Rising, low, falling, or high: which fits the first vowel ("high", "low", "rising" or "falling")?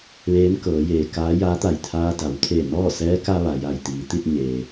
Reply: rising